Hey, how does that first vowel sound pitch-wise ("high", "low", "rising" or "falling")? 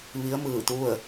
rising